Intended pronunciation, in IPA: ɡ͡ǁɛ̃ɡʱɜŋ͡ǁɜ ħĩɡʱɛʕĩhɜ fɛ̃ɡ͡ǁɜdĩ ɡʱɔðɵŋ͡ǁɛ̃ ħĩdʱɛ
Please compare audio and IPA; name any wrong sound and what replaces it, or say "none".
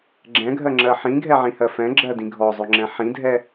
ð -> zˤ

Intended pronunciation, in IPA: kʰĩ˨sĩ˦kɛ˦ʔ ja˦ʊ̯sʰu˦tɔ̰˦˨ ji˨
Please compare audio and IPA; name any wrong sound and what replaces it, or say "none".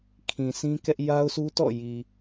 none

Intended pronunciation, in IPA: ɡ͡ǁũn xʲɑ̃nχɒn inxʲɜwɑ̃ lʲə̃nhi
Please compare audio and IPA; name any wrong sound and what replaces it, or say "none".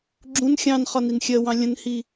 none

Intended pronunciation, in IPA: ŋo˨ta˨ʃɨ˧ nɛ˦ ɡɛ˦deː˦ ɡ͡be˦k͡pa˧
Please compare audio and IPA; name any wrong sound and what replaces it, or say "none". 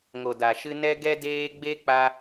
t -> d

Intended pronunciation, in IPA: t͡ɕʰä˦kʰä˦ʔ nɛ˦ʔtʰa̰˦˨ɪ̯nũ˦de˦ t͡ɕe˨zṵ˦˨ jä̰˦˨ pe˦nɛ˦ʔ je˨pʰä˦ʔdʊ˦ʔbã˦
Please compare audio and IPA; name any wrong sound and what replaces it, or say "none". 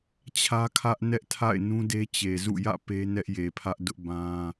none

